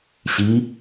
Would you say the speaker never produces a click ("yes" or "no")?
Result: yes